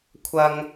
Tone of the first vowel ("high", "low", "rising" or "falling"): high